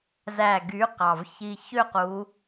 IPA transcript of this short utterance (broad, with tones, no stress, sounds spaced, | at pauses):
z æ˨˩ ɡ y˩˧ q ɑ˨˩ v ç i˨˩ ç ø˦˨ q u˩˧